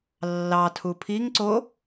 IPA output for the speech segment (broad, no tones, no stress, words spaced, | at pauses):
lːɑtʰu pʰiŋ ǀo